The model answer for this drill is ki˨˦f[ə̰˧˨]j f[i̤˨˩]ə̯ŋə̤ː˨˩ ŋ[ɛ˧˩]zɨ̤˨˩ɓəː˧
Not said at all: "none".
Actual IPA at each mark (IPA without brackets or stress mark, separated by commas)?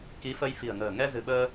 ə˧, i̤˨˩, ɛ˧